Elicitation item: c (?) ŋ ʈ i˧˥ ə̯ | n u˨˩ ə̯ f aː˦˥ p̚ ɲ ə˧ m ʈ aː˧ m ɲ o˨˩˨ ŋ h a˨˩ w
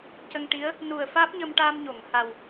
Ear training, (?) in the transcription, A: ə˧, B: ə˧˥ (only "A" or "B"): A